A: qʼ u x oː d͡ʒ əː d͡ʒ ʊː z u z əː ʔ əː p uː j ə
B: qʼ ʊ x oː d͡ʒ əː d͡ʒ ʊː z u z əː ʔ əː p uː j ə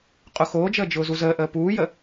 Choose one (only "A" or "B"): B